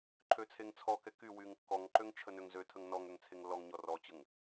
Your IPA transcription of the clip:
ǃʰøt͡sʰeŋt͡sʰɔkɛ ky wyŋkːɔŋǃøŋ t͡ʃʰənøŋzøtʰəŋ nɔŋ øŋt͡sʰeŋlːɔŋɲɔ rɔt͡ɕəŋ

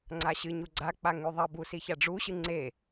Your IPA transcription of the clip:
ŋ͡ǀaɕɨɲu ɡ͡ǀak͡pa ŋʉðˤɐbu siçaɖ͡ʐuɕɨ ŋ͡ǀe

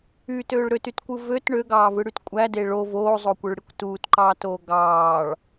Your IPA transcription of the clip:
ytøːɭ ɾøtytkʷɯ vøt ɳøɡɑːvɯɽyt kʷʼæde ɭo voːzˤoːkʷøɭɽikʷ tuːtǃɑːtoː ɡɑːɭ

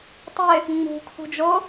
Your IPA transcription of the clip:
tˤɪ | ŋ͡mṳkʰṳd͡ʒo

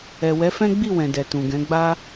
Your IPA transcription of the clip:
ɛ˨ wɛ˨˦fɛ̃˦ ɡ͡bi˦˨wɛ̃˨dɛ˨ tũ˨ɡɛ̃˨˦ɡ͡ba˦

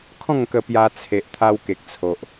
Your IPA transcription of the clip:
kʰɔ̃˥˧ŋkə˧ pja˧t͡sʰe˨ʔ t̪ʰa˧wke˨k̚t͡sʰo˨ʔ

